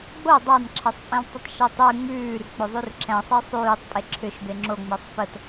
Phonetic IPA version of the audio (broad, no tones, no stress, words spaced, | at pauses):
ɡ͡bo dˤɑnǁʰɛsˤpʼẽltˤətˤ ʃɛtˤʉ ŋ͡mʉːr k͡pʏðˤʉrǁɛ̃ sˤesˤʉːtˤ pʼeǁʰʏʃ beŋ͡ǁoŋ͡mɛsˤ pət